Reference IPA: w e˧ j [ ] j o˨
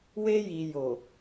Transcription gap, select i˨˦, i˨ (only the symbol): i˨